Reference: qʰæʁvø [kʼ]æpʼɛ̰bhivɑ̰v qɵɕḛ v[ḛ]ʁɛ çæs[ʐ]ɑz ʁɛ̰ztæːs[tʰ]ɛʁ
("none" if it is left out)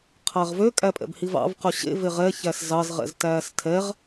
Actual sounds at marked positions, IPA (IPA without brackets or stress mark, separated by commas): kʼ, e, z, tʰ